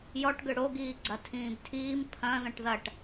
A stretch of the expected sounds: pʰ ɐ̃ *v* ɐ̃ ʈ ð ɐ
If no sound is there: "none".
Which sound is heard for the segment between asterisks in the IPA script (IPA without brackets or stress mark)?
ð